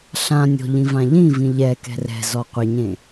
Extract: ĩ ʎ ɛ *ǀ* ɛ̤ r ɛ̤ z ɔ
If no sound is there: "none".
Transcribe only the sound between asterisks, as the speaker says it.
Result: k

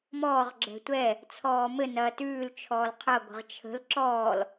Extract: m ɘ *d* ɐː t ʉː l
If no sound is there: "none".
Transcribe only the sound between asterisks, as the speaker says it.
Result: n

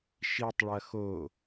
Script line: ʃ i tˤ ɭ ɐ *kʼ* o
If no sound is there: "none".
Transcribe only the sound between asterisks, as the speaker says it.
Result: x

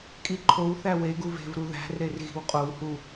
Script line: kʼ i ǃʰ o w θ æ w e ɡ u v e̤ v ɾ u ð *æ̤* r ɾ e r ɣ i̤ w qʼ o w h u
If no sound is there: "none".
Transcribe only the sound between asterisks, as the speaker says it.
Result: æ̤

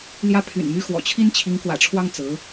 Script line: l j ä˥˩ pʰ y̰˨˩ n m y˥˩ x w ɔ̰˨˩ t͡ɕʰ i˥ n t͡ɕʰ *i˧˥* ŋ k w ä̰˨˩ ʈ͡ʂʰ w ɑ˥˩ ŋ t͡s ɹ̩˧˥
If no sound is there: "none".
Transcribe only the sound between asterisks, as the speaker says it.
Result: i˧˥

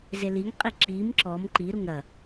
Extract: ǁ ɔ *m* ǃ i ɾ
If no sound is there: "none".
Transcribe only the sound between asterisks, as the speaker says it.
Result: m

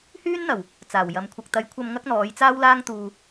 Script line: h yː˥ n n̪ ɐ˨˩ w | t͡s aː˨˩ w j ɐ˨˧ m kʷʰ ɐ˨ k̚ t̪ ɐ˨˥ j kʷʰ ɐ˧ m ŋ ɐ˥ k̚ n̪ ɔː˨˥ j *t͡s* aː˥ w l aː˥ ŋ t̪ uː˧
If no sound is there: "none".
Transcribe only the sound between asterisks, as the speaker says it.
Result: t͡s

